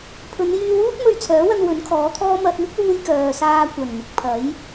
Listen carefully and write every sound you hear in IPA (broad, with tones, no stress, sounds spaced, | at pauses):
pʰ ɵ˨˧ n j yː˧ w uː˥ t̚ m ɵ˧ ɥ t͡sʰ œː˨˥ w ɐ˧ n w ɵ˨˥ n kʰ ɔː˨˥ t̪ʰ ɔː˥ m ɐ˧ t̚ m ɪ˥ k̚ w uː˧ j k œː˨ s aː˧ kʷ ɐ˨˩ n m ɪ˨ k̚ pʰ ɐ˨˥ j